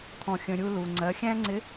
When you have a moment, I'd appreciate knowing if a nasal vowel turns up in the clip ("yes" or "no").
yes